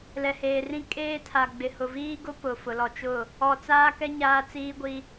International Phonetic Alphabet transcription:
l ɛ˨ h eː˨ r ĩ˦ kʼ eː˦ tʰ a˨ ɡ͡b ɪ˨ h ʊ˨ v iː˦ ɡ ʊ˦ p ʊ˨ f ʊ˨ l ɔ˨ t͡ʃ ʊ˦˨ | ɔ˨ t͡s aː˦ k ɛ˦ ɲ aː˦ t͡s iː˦ ɡʷ i˦

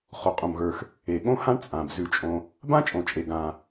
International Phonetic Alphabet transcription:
χ o˩ qʼ õ˩ m ɣ ə˞˩ x | e˩ ɠ õ˥ h ã˥ ɳ t͡sʼ ã˩ b z ʉ˩ t͡ʃʼ õ˩ | b ã˥ t͡ʃʼ õ˩ t͡ʃʼ e˩ ɡ ã˩

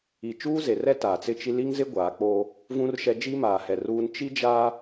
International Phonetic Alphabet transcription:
i˨ t͡ʃ uː˦ z e˨ r ɛ˦ t aː˨ t͡s ɪ˦ t͡ʃ i˦ l i˦ ŋ z ɪ˦ ɡʷ aː˨˦ k͡p oː˦ | v ũ˦ r ʃ ɛ˦ d͡ʒ i˦ m aː˨ h ɛ˨ r uː˦ n t͡ʃ i˦ d͡ʒ aː˦

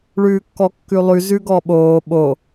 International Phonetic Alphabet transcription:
ɭ ʉː kː ɔ kː ʉ lˠ ʉ z ʉ ɡ ɔ ɓ oː ɓ o

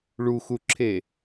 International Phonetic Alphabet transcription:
ɭ u x u ǁʰ e

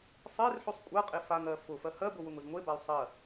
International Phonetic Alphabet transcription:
sˤ e r ħ ʉ sˤ kʷʼ a qʼ e f a ŋ ɜ f ʊ f ɜ h ɜ b ʊ w ʊ ŋ ʊ z ŋʷ e b a y̯ sˤ ɜ

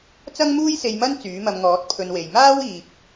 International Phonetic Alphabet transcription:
t͡s ɐ˥ ŋ m uː˥ j s e˧ j m ɐ˥ n t͡s yː˨˥ m ɐ˧ m ŋ ɔː˨˥ t̚ pʰ ɵ˧ n w e˨ j m aː˥ w iː˨ p̚

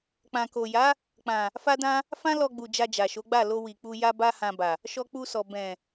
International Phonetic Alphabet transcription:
k͡p ã˨ k o˨ j a˨˦ | k͡p ã˨ | f a˦ d ã˦ | f ã˦ l ɔ˧ ɡ͡b u˨ d͡ʒ a˧ d͡ʒ a˨ ʃ o˨˦ ɡ͡b a˦˨ l o˧ w i˨ k͡p u˧ j a˦ b a˦ h ã˧ b a˨ | ʃ ɔ˧ k͡p u˧ s ɔ˨ b ɛ̃˨

